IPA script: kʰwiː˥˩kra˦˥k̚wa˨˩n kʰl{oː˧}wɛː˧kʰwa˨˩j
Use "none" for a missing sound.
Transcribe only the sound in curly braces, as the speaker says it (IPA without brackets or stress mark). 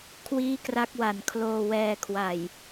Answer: oː˧